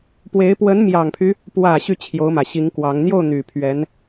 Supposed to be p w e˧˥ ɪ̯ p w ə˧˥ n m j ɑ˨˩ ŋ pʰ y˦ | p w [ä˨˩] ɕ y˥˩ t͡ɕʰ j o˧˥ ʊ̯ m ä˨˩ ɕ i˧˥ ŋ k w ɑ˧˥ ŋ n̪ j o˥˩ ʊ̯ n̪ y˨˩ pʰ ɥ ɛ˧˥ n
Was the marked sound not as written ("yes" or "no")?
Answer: no